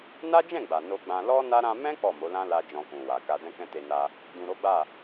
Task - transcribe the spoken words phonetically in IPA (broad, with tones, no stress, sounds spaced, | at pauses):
n a˦ d͡ʒ ɛ̃˦˨ ɡ͡b a˨ n o˧ ɡ͡b ã˧ l ɔ˦ n a˦ ɾ ã˧ m ɛ̃˦ k͡p ɔ˦˨ m o˨˦ l ã˦ l a˧ d͡ʒ ɔ̃˧ k ũ˨ w a˨ k a˧ d ɛ̃˦ k ɛ̃˦ t e˧ n a˧ | d ũ˨ ɾ o˨˦ ɡ͡b a˦˨